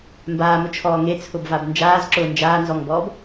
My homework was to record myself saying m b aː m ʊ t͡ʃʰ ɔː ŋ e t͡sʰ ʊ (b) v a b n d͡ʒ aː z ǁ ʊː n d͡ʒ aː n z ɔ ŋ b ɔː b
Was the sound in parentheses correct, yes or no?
yes